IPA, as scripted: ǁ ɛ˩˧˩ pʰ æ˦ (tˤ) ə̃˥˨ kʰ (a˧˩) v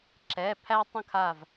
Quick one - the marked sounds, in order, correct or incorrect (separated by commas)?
correct, correct